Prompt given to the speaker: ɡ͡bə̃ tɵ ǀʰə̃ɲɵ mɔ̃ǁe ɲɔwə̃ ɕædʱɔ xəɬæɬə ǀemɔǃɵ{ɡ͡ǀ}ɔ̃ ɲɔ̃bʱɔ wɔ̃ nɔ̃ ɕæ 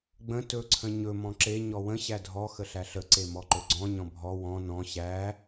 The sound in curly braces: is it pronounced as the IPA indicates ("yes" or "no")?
yes